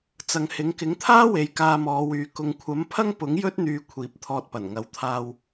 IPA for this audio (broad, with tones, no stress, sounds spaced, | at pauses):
t͡s ɐ˨ ŋ h ɪ˨˥ ŋ k ɪ˨˥ ŋ t̪ʰ aː˥ w e˨ j k aː˧ m ɔː˨˧ w yː˨˧ k ʊ˨ ŋ kʷʰ ɐ˨˥ m pʰ ɐ˥ ŋ p ʊ˨˥ ŋ j ɵ˥ t̚ n̪ yː˧ kʷʰ iː˨ p̚ t̪ʰ ɔː˧ t̚ p ɐ˨˩ n ŋ ɐ˨˧ w t̪ʰ aː˧ w